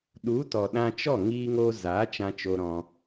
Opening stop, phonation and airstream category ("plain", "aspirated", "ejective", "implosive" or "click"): implosive